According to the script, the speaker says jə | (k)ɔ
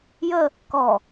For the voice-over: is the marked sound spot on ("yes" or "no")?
yes